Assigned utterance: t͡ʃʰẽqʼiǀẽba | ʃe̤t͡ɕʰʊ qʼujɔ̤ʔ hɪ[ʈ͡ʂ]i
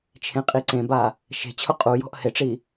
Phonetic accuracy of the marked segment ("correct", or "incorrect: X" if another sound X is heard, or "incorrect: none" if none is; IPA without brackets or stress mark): correct